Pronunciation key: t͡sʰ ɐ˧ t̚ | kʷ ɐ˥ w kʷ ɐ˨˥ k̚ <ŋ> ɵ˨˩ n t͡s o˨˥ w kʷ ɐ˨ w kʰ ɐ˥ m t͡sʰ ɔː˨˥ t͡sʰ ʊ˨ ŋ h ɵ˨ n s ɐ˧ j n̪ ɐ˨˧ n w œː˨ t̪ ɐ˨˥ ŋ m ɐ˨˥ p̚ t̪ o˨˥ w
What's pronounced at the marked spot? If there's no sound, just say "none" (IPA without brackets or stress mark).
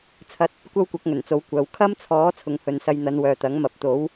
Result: ŋ